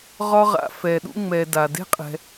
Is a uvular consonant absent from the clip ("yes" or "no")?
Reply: no